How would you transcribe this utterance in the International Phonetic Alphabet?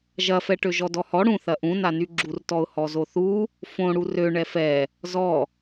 ʒ ɐ f ɛ ʈ ø ʒ ɔ d ɔ h ɔ ɽ ũ θ ɐ ʔ ũ n a n y ɡ͡ǁ u r t ɔ ʊ̯ h ɔ z o θ u | f õ ɽ u r ø ɳ ɛ f ɛ | z ɔ

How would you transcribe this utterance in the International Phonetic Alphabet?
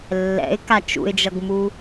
lː ɛ̰ ɪ̯ k a t͡ʃ ṵ ɪ̯ d͡ʒ ʌ ɡ m u

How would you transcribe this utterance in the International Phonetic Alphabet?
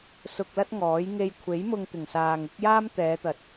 s ʊ˧ k̚ l ɐ˥ t̚ ŋ ɔː˨˥ j ŋ e˧ j kʷʰ e˨˥ j m ʊ˧ ŋ t̪ ɪ˨˩ ŋ s aː˨ ŋ ɪ˨˥ k̚ j aː˥ m t̪ ɛː˨˧ t̪ ɐ˨ t̚

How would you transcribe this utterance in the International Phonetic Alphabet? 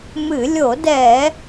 m ɨ˧˩˧ lʲ o˧˩˧ d ɛ˧˩˧

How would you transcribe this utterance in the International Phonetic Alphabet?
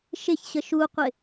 ʃ ɪ ç ɕ ə ʃ u qʷ ɪ

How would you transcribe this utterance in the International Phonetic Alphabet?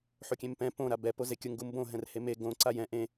ħ o kʲ ẽ m p ɛ̃ p õ ɾ a b ɛ p o z e kʲ ʊ ŋ ɡ u m b õ ɦ ɛ̃ r h e m e ɡ õ ǀ a j ɛ̃ ʔ ẽ

